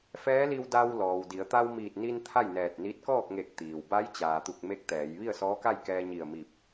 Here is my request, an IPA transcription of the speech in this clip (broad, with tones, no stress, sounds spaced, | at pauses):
f ɛː˧˥ l i˧ w d a˧ w l ɔː˩ w d i˩˧ ə̯ t̪ a˧ w m iː˧˩ t̚ n i˧ n t̪ʰ a˥˨ j n ɛː˧˩ t̚ n i˧˥ t̚ k ɔː˥˨ k̚ ŋ e˧˩ k̚ t̪ iː˩ w b a˧˥ j t͡ɕ aː˩ t̪ u˧˩ k̚ m e˧˥ k̚ t̪ ɛː˩˧ j ʋ i˥˨ ə̯ s ɔː˧˥ k a˥˨ j k ɛː˧ ɲ i˧˩ ə̯ m i˧˩ p̚